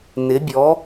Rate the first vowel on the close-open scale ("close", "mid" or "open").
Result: close